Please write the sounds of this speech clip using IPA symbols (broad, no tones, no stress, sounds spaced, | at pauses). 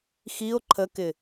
x i o̯ ǃʰ ə k ɪ